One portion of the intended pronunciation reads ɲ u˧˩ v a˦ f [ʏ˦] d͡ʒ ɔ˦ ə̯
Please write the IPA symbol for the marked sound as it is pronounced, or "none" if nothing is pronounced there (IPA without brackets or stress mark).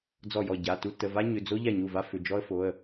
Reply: ʏ˩˧˩